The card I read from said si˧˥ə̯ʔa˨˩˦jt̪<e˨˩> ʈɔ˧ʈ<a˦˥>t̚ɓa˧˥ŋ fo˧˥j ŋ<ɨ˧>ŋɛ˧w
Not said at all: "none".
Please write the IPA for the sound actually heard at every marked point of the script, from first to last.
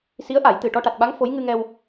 ɨ˨˩, a˨˩, ɨ˧

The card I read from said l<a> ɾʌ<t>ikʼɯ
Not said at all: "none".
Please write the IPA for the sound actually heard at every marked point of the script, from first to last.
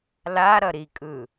a, ɾ

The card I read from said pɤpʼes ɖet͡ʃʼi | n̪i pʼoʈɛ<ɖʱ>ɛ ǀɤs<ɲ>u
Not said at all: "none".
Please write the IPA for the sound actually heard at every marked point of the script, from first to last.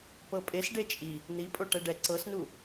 ɖ, n

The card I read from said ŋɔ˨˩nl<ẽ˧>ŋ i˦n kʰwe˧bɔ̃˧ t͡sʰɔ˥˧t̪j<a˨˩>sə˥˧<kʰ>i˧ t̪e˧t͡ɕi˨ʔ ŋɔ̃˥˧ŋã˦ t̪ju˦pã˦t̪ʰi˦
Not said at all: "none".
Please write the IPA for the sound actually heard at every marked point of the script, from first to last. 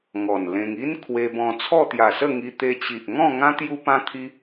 ẽ˧, a˨˩, ŋ

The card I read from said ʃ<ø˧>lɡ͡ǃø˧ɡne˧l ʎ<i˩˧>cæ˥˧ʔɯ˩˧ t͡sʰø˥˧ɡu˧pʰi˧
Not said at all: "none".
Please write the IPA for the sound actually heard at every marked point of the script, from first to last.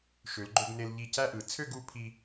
ø˩˧, i˧˩

